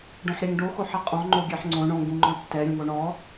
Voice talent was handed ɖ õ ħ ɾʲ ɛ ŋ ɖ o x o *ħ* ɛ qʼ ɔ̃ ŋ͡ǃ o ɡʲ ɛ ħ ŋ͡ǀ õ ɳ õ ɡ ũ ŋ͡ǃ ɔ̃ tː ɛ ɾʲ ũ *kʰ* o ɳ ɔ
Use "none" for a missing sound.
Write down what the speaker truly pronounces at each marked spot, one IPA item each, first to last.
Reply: ħ, ŋ

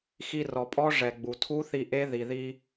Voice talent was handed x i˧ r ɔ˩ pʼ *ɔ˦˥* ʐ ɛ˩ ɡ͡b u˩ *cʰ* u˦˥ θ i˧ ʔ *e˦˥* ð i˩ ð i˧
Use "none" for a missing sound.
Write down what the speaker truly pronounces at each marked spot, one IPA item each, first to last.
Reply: ɔ˦˥, tʰ, e˦˥

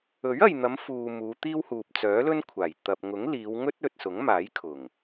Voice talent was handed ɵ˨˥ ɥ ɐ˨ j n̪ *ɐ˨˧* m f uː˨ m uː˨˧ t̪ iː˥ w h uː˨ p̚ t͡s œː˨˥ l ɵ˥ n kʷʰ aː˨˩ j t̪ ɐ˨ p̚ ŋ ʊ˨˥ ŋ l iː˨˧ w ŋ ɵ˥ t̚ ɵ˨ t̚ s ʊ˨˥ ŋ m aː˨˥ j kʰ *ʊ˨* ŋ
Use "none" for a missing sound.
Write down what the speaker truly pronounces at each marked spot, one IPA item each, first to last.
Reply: ɐ˨˧, ʊ˨˩

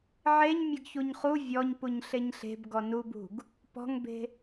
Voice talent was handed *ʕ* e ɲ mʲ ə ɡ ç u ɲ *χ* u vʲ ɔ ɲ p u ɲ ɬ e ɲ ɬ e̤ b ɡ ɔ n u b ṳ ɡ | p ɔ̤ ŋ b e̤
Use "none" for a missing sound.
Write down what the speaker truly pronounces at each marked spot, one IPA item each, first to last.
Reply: ʕ, χ

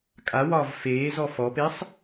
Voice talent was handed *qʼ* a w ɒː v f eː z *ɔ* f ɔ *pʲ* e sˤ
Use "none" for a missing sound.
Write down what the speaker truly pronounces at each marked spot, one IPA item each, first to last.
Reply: kʼ, ɔ, p

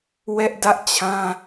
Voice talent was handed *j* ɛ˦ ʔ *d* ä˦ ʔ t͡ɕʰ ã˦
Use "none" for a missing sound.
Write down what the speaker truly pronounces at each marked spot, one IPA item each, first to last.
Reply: w, d

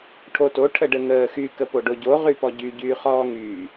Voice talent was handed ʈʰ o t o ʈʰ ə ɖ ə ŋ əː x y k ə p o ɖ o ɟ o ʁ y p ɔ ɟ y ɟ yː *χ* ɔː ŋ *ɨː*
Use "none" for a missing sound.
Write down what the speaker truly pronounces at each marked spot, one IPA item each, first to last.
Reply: χ, yː

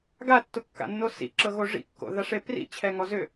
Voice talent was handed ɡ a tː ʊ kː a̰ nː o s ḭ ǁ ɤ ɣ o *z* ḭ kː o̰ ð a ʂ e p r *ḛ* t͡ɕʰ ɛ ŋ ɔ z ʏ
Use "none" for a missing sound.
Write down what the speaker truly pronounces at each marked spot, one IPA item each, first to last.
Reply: ʐ, ḭ

